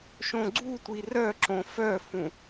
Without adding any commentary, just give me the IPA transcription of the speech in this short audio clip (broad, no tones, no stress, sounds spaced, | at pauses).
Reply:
ʃ õ ɡ͡ǀ u tʷ i r œ ǁ õ f œ f ũ